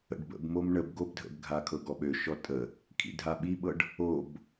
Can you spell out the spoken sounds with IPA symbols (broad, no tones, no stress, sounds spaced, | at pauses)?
ə̰ ɖ b ə̰ b m o m ɳ ə b ɡ o b dʱ ə̰ b ɡʱ a kʰ ɤ ɡ ɔ ɓ ø ʃ ɔ tʼ ə | kʰ ḭ dʱ a ɓ i ɓ ɤ ɖ | o b